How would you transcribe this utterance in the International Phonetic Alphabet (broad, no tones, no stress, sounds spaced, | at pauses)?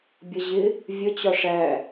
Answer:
bʲ ʌ ʑ ɪ | vʲ ə t͡ɕ ɒ ʂ æ